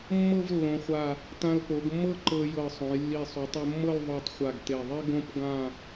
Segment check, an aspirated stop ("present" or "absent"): absent